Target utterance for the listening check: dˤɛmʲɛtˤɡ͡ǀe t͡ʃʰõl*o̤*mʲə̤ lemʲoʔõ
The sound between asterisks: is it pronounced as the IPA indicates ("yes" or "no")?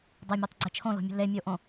yes